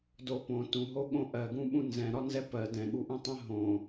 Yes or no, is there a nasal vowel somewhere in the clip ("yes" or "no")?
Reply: yes